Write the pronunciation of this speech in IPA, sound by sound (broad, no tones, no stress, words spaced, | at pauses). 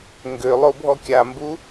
ŋɡølˠo bʱɔkʲambu